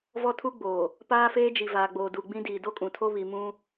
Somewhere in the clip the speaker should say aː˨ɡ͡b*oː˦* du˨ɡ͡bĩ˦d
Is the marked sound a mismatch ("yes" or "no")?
yes